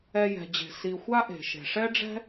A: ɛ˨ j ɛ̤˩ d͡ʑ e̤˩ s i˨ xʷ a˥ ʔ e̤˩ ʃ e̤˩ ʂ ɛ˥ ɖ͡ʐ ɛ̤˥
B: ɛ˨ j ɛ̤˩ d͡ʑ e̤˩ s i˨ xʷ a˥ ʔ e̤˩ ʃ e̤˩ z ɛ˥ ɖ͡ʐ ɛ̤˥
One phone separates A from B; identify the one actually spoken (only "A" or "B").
A